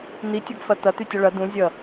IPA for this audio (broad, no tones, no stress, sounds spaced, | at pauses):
n̪ i tʲ ʌ ɡ f ɐ t̪ ɐ t̪ y tʲ ʌ ɭ ɐ d̪ ũ zʲ ʌ